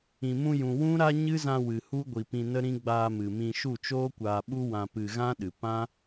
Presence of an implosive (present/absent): present